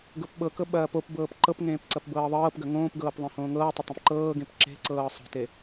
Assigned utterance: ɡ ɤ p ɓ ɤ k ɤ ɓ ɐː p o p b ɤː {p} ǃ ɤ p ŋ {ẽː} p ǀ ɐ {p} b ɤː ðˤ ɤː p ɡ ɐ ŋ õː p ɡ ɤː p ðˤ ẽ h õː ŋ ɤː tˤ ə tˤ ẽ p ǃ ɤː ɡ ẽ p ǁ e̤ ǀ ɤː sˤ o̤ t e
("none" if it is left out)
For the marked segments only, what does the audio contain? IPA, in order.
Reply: p, ẽː, p

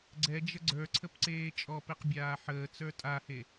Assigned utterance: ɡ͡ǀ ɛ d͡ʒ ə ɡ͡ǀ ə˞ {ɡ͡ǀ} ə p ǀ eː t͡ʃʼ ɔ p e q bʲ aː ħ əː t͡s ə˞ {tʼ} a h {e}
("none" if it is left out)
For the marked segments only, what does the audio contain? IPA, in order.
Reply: ǀʰ, tʼ, e

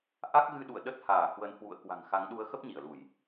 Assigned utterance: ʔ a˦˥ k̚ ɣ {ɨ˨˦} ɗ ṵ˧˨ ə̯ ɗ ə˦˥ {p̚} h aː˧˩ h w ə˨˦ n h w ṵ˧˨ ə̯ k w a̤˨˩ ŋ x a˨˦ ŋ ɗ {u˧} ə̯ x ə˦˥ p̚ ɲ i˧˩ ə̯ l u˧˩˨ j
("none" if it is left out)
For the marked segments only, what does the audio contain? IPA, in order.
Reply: ɨ˧, t̚, u˨˦

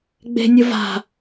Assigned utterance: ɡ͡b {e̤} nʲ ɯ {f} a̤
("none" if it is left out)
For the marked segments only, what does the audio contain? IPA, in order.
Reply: e̤, v

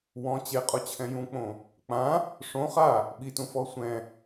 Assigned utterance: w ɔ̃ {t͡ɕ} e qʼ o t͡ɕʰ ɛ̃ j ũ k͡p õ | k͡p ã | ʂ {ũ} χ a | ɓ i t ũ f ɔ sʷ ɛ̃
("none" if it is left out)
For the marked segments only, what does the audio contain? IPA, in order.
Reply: t͡ɕ, õ

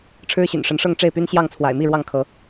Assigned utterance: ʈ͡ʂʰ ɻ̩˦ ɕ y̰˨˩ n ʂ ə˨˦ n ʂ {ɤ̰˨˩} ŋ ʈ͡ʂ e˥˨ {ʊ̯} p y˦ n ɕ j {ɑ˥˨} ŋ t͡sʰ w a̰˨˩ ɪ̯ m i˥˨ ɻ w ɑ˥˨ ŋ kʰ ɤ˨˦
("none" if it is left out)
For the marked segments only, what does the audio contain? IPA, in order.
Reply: ɤ˥˨, ɪ̯, ɑ˥˨

